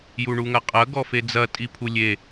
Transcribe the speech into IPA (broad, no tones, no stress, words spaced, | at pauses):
juɳuŋɐqʼɐ ɡɔfed͡zɐ tʼipʰulʲe